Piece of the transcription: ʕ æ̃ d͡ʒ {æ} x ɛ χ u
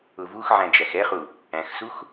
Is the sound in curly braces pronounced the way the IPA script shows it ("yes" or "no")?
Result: yes